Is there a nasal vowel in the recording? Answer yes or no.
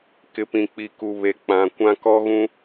yes